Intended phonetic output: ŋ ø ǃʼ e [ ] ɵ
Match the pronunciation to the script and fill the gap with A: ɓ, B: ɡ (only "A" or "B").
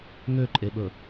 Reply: A